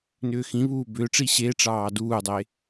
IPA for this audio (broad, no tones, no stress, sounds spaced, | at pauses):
n ʏː x ĩ β uː b ʏː ʈ͡ʂ i ɕ e ʈ͡ʂ ɑː d uː dˤ e